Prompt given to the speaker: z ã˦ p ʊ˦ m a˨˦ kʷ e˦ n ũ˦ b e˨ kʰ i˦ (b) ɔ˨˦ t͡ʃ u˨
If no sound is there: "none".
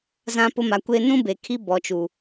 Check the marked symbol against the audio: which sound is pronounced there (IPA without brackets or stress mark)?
b